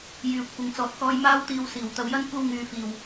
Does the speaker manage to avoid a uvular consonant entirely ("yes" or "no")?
yes